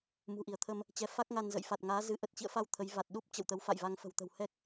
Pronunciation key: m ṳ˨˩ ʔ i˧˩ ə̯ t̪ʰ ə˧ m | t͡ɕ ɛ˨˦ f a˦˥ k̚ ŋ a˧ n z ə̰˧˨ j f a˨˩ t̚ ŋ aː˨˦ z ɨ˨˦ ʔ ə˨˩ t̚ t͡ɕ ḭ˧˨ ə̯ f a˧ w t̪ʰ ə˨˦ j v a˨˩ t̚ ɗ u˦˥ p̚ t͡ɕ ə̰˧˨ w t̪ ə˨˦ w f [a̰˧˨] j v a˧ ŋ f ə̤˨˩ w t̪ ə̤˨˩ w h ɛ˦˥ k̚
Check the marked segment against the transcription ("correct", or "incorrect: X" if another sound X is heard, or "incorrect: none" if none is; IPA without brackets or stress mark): correct